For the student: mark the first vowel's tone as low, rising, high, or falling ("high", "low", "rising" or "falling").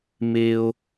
high